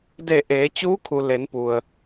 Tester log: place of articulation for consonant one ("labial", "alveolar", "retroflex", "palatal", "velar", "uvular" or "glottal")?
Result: alveolar